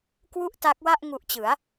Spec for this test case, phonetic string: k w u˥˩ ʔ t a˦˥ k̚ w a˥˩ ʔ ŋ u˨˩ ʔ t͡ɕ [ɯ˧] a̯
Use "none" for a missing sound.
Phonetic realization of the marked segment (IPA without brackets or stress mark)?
ɯ˩˦